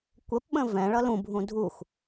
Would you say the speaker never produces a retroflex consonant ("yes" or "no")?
no